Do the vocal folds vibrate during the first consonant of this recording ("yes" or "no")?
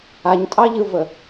yes